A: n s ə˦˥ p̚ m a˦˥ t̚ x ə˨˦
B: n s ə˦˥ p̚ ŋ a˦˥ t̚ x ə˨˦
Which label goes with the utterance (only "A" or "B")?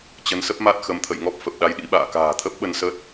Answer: A